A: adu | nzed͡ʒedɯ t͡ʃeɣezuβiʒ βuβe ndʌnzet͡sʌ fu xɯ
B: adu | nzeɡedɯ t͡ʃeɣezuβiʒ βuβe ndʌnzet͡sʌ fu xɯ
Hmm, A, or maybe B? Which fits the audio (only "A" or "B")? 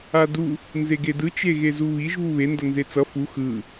B